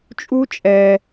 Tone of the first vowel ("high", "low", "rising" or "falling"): high